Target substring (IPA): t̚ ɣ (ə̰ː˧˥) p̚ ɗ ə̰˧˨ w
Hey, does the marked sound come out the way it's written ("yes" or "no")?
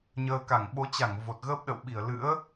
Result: no